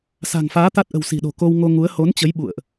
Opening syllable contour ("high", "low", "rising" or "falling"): low